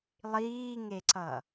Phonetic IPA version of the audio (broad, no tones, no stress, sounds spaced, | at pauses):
lˠ iː ŋ e ǀ ʌ